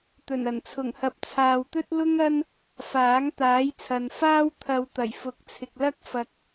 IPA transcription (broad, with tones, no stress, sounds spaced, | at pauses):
t̪ ɵ˨˩ n ɐ˨˩ n t͡sʰ ʊ˨˩ ŋ h ɐ˨ p̚ t͡sʰ aː˨ w t̪ ɵ˥ t̚ l ʊ˥ ŋ ɐ˥ n | f aː˨˥ ŋ t̪ aː˨˥ j t͡sʰ ɐ˨ n f aː˥ w t̪ʰ ɐ˧ w t̪ ɐ˨˩ j f ʊ˨˥ k̚ t͡sʰ ɪ˨ k̚ l ɐ˥ k̚ f ɐ˧ k̚